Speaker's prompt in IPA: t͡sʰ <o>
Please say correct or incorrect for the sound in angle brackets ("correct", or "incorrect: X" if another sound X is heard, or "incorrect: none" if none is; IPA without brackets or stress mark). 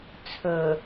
incorrect: ɵ